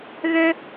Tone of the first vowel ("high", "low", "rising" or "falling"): high